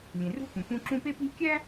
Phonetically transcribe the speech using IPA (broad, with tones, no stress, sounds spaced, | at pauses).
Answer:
lʲ ẽ˩ r ṳ˥ p ũ˩ p ũ˦ ǁ ũ˦ p e˥ p i̤˥ lʲ kʲ æ˥